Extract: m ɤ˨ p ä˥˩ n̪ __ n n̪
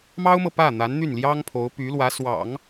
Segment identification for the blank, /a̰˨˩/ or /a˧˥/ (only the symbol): a˧˥